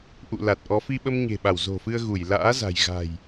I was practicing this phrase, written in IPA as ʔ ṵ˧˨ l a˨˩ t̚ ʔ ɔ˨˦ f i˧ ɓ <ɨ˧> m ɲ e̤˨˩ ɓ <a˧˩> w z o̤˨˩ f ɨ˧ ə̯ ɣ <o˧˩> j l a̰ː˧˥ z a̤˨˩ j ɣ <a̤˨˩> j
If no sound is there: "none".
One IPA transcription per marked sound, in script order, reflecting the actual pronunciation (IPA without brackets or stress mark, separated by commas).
ə˧, a˧˩, u˧˩, a̤˨˩